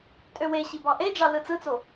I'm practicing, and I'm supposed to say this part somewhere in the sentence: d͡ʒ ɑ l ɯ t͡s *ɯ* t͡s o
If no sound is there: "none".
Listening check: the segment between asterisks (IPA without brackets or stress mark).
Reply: ɯ